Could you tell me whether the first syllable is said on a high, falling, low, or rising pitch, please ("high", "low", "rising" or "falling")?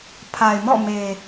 low